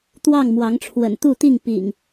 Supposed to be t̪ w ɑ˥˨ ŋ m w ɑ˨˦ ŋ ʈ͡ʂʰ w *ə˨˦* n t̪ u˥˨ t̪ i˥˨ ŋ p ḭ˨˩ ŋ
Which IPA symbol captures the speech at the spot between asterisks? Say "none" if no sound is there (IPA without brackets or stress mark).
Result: ə̰˨˩